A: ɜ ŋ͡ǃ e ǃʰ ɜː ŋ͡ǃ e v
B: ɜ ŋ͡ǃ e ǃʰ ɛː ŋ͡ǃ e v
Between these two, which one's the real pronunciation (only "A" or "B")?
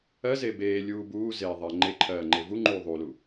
A